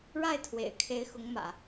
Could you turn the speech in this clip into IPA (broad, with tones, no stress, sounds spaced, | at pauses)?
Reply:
ɻ a˥˩ ɪ̯ t̪ʰ w ḛ˨˩ ɪ̯ kʰ e˧˥ ɪ̯ x ʊ˧˥ ŋ m ä̰˨˩˦